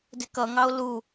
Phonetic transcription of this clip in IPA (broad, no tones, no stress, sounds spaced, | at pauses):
d ɪ k ʌ ŋ ɑ o̯ l u